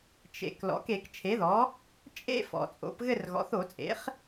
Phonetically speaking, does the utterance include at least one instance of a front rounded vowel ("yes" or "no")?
no